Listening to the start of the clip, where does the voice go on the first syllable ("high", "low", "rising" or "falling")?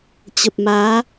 low